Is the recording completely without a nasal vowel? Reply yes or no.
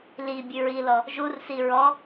yes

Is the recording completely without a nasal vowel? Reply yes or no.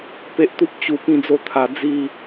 no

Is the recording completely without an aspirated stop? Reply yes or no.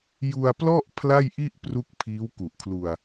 no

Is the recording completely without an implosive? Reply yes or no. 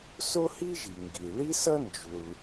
yes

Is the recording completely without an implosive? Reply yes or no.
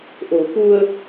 yes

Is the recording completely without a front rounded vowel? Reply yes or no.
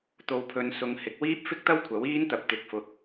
yes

